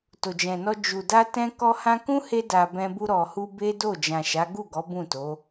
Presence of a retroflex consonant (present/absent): absent